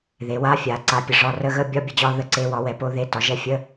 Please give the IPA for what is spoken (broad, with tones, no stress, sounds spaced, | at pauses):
ð e˩˥ w a˧˥˧ fʲ a˩˥ ǀ a˩˥ pʲ ə˩˥ ʐ ɒ˧˥˧ r ə˧˥˧ ɣ ə˧˥˧ bʲ ɒ˧˥˧ bʲ ə˩˥ d͡ʑ ɒ˧˥˧ ð ə˧˥˧ ǀ e˧˥˧ w ɒ˩˥ w ɛ˩˥ p o˧˥˧ ð e˧˥˧ t ɒ˩˥ ʒ ɛ˧˥˧ fʲ ə˧˥˧